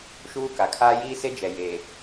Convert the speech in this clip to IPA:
ʃ uː˦ k a˨ kʰ aː˦ j iː˦ s e˦ d͡ʒ ɛ˨ j eː˨

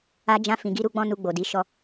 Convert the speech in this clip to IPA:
a˧ d͡ʒ ã˧ f ĩ˨ ɡ i˧ ɾ u˧ ɡ͡b ɔ̃˧ n u˧ ɡ͡b o˨ d i˨˦ ʃ ɔ˧

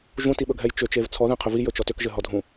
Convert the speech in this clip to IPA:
ʒ ũ t i ɓ ɵ ɡʱ ɛ j t͡ʃ ʏ t͡ʃ e v t͡sʰ ɔ ð ɛ̃ qʰ ʏ v i j ɵ t͡ʃ ɔ t ʏ k ʒ ɘ ɦ ɔ dʱ ũ

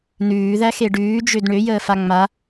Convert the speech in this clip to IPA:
n ʉː ð æ x e ɖ ʉː d͡ʒ ø d ɳ ø j əː f a ŋ͡m a

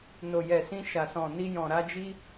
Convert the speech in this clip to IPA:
n o˨ j ɛ˨ s ĩ˧ ʃ a˨ s ɔ̃˨ n i˧ j ɔ̃˨ ɾ a˧ d͡ʒ i˦

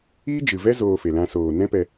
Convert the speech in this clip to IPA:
iː˦ d͡ʒ ɨ˨ v ɛ˦ z oː˧ f e˨ l ã˧ s oː˨ n ɛ̃˦ p ɛ˧

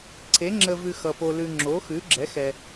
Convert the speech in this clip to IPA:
ǀʰ e˨˥ ŋ͡ǁ əː˧ v ʉ˧ x ʌ˧ p o˧ l ʉ˧ ŋ͡ǁ o˨˥ x ʉ˨˥ ɡ͡ǁ ɛ˨˥ x ɛ˧

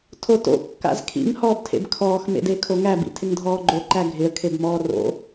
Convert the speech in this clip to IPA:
tʰ o t o̰ kː a̰ z kʰ ḭ ŋ h ɔː b tʰ ḛ b kʰ ɔː x m ḛ d e kʰ o ŋ æ b ḭ tʰ ɪ ŋ dʱ ɔː ɡ͡ǃ o ǃ æ ɡʱ ɪ ə̯ kʰ e b m ɔː r o̰

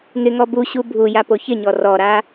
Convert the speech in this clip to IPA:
ŋ ɪ ŋ ɔ b u ɕ u bʱ u j a p o ç ɪ ɲ ɔ r ɔ ɾ a

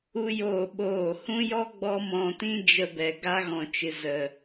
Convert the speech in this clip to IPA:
u˦ j oː˦˨ ɓ oː˦˨ h ũ˦ j ɔ˦ ɡ͡b ɔ˦ m ɔ̃˧ t ĩ˦ d͡ʒ ə˧ b ɛ˨ ɡ a˧ ɣ ɔ̃˨ t͡ʃ ɨ˨ z ə˨

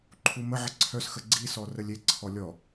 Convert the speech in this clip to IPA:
ǃʰ u m ə ʕ ə ǀʰ œ s x ə ɡ͡ǀ i s ɔ r ə lʲ e ǀʰ ɔ lʲ ɔ

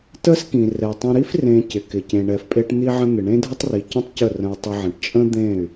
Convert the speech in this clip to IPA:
t ə˦ s k ĩ˨ r ɛ˨ tˤ ə̃˧ ɾ i˦ f r ẽ˧ c ɪ˨ k ɪ˨ c ẽ˨ ɳ ɛ˨ f pʼ e˧ ʈ n̪ i˧ ʕ ə̃˧ n̪ ɪ˨ ɳ ẽ˦ dʱ ə˦ tˤ r i˨ c ə̃˦ tˤ c ə˦˨ r ə̃˧ u̯ tˤ ə˧ ʕ ə̃˨ ʈ t͡ʃʼ ə̃˦ d̪ ẽ˦˨ y̯

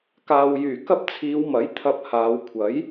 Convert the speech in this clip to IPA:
k aː˨ w j yː˨˩ k ɐ˥ p̚ t͡sʰ iː˨˧ w m ɐ˨˥ j t̪ʰ ɐ˧ p̚ h aː˨˧ w kʷʰ ɐ˨˥ j

